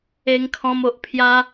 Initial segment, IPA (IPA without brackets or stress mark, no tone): e